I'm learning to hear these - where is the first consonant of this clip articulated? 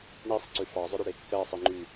retroflex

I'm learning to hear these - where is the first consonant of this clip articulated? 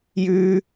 palate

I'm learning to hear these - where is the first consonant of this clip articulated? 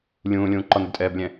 tongue tip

